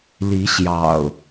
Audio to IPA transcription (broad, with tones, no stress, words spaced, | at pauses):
li˨˦ɕjɑ̰˨˩ʊ̯